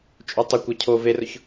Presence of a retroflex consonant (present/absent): absent